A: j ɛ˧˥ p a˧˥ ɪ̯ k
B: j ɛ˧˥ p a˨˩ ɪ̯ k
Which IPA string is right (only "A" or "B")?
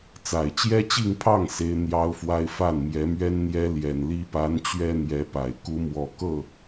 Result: B